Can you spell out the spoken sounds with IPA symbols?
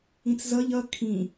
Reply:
ĩt͡szʌʎ ʌ kʰĩ

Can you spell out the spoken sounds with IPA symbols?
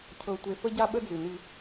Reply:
cʰɤ˨ tʷe˨fə˦ɟa˦ ɓə˦d͡zʉ˨nʉ˦

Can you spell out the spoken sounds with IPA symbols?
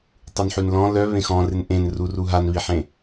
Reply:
tˤunħʉnlɔ̃ lœ βẽxɔ̃rɪn ʔẽnruru ɦanβiħẽ

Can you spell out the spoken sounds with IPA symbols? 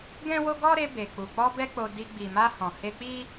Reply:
ɡɛ̃˦wo˦ ɡɔ˦ ɾe˧be˨k͡pu˨k͡pɔ˧ bɛ˦k͡po˧di˧ ɡ͡bi˨ma˧ hɔ̃˨he˧k͡pi˦

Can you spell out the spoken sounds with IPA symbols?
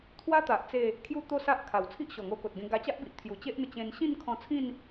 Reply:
t̪ʰwa˦t̪a˨ʔ t͡se˥˧ | kʰju˥˧t̪o˥˧sa˦ʔ kʰa˨˩wt͡sʰi˦ʔɕɔ˨˩ŋo˧ ko˨t̚ɡẽ˧ ɡa˧t͡ɕa˦ʔbi˨ʔt̪ʰju˨˩ t͡ɕe˦ʔn̪ə˧ t͡ɕẽ˧n ɕĩ˥˧nkʰɔ̃˧t͡sʰĩ˥˧n

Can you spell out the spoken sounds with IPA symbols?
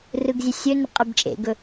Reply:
rɯɡzʲɛsʲɵnə qʼebt͡ʃʼḛɡɵ

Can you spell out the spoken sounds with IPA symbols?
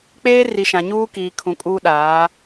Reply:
k͡peː˦ri˨ʃã˨ ɲuː˦ kiː˨kʰũ˨kʼuː˦ ɗaː˨˦

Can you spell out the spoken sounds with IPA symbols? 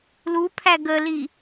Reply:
lupʰæ ɡəli

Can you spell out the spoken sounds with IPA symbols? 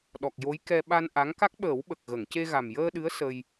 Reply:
ɗɔ˨˩k̚jo˧˥jkɛ˧ ɓa˧nʔa˧˥ŋ ka˦˥k̚ɓəː˨˩˦wɓə˨˩k̚ ɣə˨˩˨ŋce˧ ɣa˨˩m jəː˧ɗɨ˧˥ə̯ sə˧j

